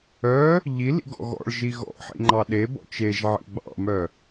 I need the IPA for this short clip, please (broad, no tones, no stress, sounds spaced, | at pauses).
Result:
œ | ʎ i l ḭ ɡ ɔ̰ ɣ ɔ̰ ɭ ʒ i ɣ ɔ̰ ħ ḭ ŋ͡ǃ ɑ ɗ e b ɔ̰ t͡ʃ e ʒ ʕ ḭ ɡ͡b ɑ̰ m œ